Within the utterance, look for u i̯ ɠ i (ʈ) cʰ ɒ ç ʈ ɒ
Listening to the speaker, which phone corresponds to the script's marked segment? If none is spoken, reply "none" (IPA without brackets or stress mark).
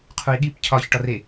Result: p